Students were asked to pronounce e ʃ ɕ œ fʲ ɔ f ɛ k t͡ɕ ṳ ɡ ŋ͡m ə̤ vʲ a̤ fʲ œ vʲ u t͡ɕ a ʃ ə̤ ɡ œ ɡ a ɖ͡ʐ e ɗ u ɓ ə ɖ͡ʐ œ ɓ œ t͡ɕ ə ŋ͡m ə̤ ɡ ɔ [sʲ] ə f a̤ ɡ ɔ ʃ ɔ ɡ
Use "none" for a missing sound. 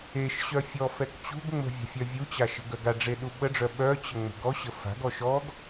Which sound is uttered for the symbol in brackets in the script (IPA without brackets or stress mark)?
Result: ɕ